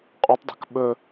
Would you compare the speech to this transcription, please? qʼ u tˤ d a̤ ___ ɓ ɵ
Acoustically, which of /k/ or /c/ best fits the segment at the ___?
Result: k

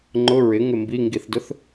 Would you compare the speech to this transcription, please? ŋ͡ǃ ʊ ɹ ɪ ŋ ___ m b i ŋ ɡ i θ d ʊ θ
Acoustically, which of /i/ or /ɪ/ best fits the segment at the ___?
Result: ɪ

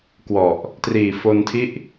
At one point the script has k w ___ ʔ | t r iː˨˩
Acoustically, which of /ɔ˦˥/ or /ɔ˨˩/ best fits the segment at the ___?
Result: ɔ˨˩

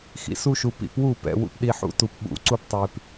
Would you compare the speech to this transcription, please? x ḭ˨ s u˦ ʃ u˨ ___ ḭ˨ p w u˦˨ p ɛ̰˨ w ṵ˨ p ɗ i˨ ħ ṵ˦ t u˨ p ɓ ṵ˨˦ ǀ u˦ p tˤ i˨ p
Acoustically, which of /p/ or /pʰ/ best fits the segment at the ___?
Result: p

